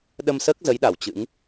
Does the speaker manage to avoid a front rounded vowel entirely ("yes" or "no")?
yes